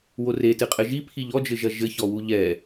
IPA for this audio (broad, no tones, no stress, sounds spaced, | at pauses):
w o r e t ɨ qʼ ɘ ʒ i pʰ i ʎ ɔ d͡ʒ ɘ ʒ ɐ ʒ ɘ ç ɔ w u ʎ ɛ